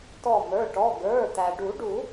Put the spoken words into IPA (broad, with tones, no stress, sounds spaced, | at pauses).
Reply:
t ɔ˧˩ m ə˞˩˧˩ ʈ ɔ˩˧˩ ɡ ə˞˩˧˩ t̪ æ˩ ɖ u˨˩˦ ɖ u˨˩˦